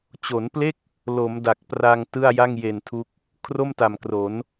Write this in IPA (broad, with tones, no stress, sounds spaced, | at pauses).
t͡ɕ o˩˦ n p l e˥˩ k̚ | l o˩˦ m d a˨˩ k̚ p r a˧ ŋ t ɯ˥˩ a̯ j a˥˩ ŋ j e˨˩ n tʰ u˦˥ k̚ | kʰ r o˥˩ m t a˨˩ m k r o˩˦ n